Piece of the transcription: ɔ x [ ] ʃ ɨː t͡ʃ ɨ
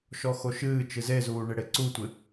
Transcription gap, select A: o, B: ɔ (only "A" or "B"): A